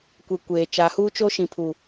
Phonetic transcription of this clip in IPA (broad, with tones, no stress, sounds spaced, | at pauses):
kʷ e˨ kʷ eː˨ t͡ʃ a˨˦ h uː˦ t͡ʃ o˦ ʃ ĩ˨ pʰ u˨